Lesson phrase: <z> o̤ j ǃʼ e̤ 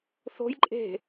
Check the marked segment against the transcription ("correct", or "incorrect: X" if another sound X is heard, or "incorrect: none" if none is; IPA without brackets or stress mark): incorrect: θ